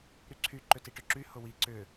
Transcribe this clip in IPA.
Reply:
ɾyǀʰy ǃʏtiʈʏǁy hʊwi ǀʏ

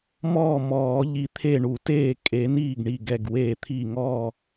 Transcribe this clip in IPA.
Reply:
mɔː˥˩mɔː˨˩˦ ʎi˧˩t̪ʰe˥˩ɳu˨˩˦teː˥˩ kʼe˨˩˦niː˥˩ɡɳi˧˩ ɡɛ˧˩ɡweː˧˩t̪ʰi˧˩ ŋɔː˥˩

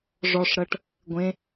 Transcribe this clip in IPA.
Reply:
ʐɔʂɾɤʈ | ɡʷẽ

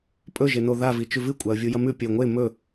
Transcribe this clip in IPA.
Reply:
pʼɵʒeno ðavi t͡ʃʉvɨ kʷʼaə̯vʲujɐmʉ pʲɵə̯ŋʷe mɵ

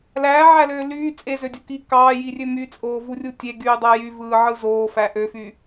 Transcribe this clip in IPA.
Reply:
læːʕæløː lyː t͡sʼezødʲu ki kɑːjirʲø myt͡sʼoːvurʲu tʲeɡyːdˤæ jyvɯːʕɯ zoːfæ ʔøfy

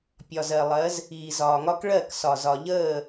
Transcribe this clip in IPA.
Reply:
pʲɒ˨zɜ˨lˠɜ˨˦z | iː˨zɒː˨ŋɒ˦k ɭɜ˦˨ksɒ˨zɒ˨ ʎəː˦˨

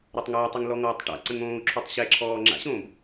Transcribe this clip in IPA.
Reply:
ɾɔtˤŋʌːtˤʌŋ lɔŋɔːtˤʈa̰ǀə̃ŋ õːu̯ǁʰotˤɕɛǁʰɔː ŋ͡ǁa̰ɕõːb

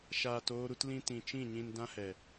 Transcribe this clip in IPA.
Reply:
ʃaː˨toː˧ɾu˧tlĩ˧ tĩ˨t͡ʃĩ˦˨ɲĩ˧n dã˦hɛ˨

